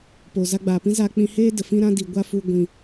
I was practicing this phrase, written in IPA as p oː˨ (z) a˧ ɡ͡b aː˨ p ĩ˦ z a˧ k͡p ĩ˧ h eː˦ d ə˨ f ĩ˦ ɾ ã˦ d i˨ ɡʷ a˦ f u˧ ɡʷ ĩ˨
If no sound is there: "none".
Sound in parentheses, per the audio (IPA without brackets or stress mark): z